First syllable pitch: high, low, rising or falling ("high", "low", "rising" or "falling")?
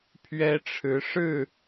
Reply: high